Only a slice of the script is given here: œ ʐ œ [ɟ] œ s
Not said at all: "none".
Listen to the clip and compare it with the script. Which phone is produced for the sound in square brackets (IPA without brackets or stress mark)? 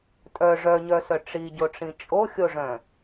ɲ